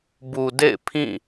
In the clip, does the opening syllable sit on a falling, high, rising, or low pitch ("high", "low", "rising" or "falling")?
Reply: low